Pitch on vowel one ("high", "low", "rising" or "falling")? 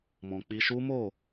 low